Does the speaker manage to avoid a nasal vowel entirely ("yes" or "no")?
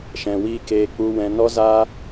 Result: no